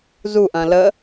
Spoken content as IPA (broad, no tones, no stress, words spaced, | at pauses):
zuʔɐ̃ lə